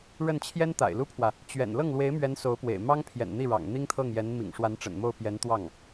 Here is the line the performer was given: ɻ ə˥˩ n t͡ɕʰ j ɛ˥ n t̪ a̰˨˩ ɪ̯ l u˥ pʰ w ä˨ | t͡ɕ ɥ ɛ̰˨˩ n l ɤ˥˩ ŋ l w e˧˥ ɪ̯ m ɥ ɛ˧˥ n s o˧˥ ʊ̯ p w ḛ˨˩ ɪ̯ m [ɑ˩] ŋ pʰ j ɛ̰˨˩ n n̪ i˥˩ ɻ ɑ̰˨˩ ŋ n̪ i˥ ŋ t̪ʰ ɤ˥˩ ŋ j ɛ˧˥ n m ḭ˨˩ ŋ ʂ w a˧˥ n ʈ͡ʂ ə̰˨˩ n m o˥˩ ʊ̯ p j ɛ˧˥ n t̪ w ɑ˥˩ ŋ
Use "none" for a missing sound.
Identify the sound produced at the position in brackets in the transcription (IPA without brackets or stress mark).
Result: ɑ˥